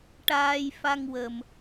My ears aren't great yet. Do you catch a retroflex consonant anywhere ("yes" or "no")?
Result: yes